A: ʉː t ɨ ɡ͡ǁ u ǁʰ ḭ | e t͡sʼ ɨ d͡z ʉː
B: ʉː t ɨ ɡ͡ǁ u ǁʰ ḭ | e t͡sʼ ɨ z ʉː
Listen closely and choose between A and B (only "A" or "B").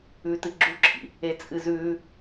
B